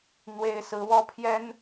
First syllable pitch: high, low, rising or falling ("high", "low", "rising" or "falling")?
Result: high